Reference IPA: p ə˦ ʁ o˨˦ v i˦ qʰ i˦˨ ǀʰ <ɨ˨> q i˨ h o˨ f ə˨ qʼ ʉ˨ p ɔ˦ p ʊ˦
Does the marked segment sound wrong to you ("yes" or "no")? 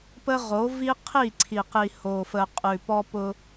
yes